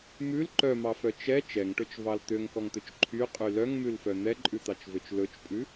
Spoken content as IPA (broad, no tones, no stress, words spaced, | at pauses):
mʉl ǃœmɑfœ t͡ʃɛ t͡ʃɛŋʈɵt͡ʃvɑl t̪øŋkɔŋt̪ɵt͡ʃ ǃʰyqʼy lœŋmʉlfœ n̪ɛǃʼʉt̪ɑt͡ʃvøt͡ʃ lɵt͡ʃpʼʉ